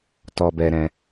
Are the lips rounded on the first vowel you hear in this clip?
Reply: yes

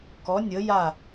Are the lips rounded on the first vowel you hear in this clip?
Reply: yes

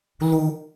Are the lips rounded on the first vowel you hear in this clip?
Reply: yes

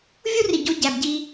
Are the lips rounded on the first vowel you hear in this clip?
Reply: yes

